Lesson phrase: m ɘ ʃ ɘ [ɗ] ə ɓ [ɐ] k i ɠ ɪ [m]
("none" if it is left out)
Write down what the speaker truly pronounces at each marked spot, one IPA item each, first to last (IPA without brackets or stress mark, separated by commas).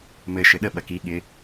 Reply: ɗ, ɐ, none